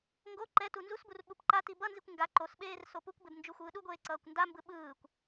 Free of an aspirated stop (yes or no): yes